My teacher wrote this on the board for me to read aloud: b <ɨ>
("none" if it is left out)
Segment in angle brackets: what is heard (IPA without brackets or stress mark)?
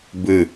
ɨ